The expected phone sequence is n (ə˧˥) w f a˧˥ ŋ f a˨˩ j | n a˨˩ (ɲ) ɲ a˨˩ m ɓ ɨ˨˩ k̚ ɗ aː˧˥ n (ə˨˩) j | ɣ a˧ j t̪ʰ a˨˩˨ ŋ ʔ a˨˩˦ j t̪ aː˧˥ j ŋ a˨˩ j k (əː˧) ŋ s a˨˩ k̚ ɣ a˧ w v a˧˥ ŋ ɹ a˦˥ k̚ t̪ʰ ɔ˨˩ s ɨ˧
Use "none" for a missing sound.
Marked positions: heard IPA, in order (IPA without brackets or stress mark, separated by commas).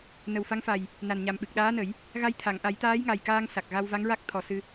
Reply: ə˨˩, n, ə˨˩˦, aː˧